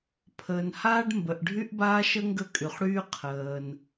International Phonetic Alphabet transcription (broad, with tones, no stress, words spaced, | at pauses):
pʰəː˩nhaː˥ɖ mbə˩ʔɖʱy˥ʔbaː˥ʃə˥ ŋɡə˥kʼy˩χɽyː˥ qʰəː˩n